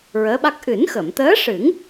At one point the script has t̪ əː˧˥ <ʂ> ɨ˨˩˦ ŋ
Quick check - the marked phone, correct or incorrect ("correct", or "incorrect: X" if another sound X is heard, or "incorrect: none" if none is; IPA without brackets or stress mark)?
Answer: correct